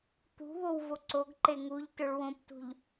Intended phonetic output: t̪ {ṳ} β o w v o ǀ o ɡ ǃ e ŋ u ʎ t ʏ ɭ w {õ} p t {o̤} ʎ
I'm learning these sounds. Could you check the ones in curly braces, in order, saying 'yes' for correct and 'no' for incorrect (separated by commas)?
yes, yes, no